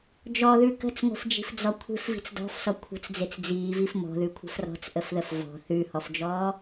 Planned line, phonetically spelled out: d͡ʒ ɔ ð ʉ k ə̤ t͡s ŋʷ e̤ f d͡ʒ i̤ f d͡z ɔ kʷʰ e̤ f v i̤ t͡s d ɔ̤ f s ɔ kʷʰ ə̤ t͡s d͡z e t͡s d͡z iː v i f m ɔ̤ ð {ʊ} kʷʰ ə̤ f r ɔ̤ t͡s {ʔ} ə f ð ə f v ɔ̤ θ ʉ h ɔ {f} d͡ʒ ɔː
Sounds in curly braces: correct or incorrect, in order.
incorrect: ʉ, correct, correct

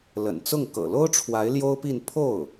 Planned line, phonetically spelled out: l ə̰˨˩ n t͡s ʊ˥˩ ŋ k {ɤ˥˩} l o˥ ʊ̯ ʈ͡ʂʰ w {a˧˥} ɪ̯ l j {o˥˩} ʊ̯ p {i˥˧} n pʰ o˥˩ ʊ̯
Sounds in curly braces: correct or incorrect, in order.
incorrect: ɤ̰˨˩, correct, incorrect: o˥, correct

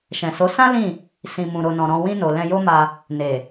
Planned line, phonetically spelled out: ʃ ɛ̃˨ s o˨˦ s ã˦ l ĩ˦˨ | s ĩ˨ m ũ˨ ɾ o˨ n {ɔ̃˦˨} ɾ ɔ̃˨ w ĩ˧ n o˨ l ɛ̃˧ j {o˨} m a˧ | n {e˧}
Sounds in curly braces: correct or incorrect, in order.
incorrect: ɔ̃˨, incorrect: o˦, incorrect: e˨

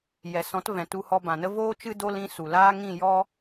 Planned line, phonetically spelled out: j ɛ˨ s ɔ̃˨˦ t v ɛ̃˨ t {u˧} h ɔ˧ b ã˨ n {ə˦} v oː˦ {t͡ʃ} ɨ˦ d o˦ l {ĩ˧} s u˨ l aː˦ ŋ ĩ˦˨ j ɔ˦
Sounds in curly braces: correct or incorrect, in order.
correct, correct, correct, incorrect: ĩ˦

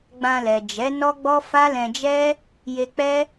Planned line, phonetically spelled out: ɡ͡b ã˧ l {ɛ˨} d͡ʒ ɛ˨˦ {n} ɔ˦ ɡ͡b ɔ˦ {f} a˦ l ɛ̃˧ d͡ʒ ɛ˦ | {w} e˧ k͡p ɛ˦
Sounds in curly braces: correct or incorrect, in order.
correct, correct, correct, incorrect: j

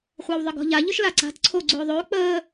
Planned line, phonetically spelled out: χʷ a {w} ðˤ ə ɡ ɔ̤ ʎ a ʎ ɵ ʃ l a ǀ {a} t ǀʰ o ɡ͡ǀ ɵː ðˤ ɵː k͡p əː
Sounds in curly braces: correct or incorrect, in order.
correct, incorrect: a̤

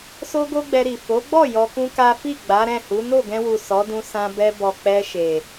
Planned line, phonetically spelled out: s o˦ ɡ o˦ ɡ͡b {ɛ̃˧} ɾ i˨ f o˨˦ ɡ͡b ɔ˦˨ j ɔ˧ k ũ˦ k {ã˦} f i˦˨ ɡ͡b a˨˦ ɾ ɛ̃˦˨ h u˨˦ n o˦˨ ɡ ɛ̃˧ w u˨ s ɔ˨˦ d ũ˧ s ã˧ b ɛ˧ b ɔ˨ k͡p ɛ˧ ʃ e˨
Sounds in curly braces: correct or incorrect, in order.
incorrect: ɛ˧, incorrect: a˦

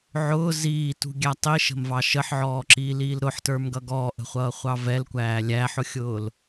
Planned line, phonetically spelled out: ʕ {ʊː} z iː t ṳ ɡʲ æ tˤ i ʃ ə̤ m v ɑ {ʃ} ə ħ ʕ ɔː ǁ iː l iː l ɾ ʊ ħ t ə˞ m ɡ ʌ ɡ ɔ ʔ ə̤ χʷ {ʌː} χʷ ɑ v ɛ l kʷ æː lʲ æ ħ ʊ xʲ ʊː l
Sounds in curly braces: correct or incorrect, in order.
correct, correct, correct

